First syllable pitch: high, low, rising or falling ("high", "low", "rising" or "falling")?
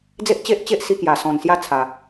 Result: high